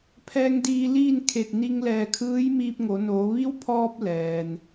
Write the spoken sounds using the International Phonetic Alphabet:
pʰ ɛː˧ ŋ d iː˧ l iː˥˨ n kʰ e˧˩ t̚ n i˧ ŋ l ɛː˧˩ kʰ ɯː˧˥ j m iː˧ p̚ ŋ o˩˧ n oː˩˧ ʋ i˧˥ w pʰ ɔː˧ p̚ l ɛː˩ n

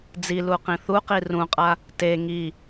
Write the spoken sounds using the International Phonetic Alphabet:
d͡z i l u q ĩ θ u q i r ũ qʼ a | t e ŋ i

